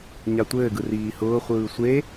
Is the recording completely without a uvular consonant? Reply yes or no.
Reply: no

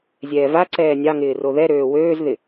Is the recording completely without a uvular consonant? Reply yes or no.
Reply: yes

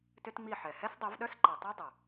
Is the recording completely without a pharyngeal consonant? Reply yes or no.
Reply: no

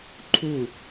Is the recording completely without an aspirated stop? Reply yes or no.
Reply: no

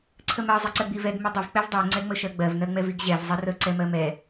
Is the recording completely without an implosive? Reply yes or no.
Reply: yes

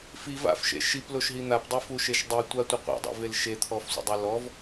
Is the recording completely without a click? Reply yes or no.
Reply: yes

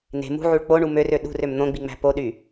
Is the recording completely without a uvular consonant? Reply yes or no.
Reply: yes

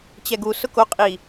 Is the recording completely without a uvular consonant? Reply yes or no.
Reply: no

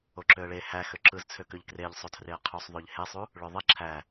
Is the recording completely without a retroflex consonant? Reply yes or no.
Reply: no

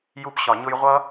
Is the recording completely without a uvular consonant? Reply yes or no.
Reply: no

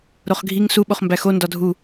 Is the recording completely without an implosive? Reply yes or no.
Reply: no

